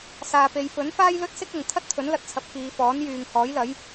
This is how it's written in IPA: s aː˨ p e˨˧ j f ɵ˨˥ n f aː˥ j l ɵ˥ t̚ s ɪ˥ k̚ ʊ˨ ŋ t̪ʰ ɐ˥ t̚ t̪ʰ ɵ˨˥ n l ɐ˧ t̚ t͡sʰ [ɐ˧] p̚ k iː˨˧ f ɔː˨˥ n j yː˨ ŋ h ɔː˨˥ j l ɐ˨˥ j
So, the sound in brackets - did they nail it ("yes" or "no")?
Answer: no